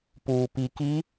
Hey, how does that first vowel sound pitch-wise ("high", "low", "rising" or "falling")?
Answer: low